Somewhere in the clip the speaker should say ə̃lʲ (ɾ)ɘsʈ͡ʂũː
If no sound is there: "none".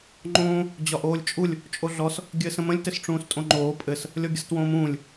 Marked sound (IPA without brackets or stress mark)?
t